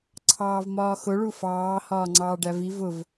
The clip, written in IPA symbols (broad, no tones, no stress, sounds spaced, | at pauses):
ǀʰ ɑː v m ɒː x ʊ ɭ u f ɑː h ɒː ŋ͡ǀ ɑː ɖ æ v i v ʊ v